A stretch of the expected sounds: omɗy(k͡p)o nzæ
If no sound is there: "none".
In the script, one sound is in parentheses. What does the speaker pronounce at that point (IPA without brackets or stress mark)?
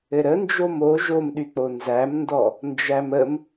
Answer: k͡p